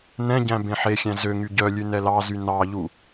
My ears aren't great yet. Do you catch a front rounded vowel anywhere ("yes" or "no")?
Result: yes